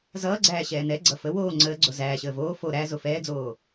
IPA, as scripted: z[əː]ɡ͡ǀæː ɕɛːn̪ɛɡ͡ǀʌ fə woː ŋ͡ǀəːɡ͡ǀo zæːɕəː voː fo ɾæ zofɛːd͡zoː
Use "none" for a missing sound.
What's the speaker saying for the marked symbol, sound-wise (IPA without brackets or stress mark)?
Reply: ʌː